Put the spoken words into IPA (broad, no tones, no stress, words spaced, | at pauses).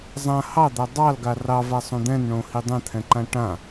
zˤã hɑd̪a dˤɑlɡa rɑvasˤõ d̪ɛ̃nɳõhi dˤɛ̃t̪ʰɛ̃ǃã ʈã